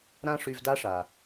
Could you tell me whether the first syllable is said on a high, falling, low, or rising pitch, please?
high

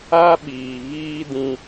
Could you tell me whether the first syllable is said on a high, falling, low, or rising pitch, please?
high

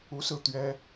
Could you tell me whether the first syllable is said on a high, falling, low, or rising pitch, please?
rising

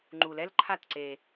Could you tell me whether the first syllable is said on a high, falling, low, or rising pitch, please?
low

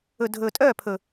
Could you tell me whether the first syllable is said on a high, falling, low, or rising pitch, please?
low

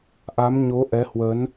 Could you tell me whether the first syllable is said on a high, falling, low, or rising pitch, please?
rising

